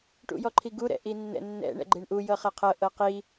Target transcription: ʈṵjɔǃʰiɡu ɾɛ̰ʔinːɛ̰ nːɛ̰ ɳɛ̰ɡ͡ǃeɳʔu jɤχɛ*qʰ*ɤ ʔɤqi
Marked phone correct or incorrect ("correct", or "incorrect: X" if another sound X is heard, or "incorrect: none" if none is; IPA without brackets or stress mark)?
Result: correct